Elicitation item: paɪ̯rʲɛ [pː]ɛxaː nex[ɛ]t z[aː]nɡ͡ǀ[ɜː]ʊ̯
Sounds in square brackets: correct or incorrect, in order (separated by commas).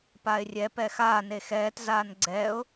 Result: incorrect, incorrect, correct, incorrect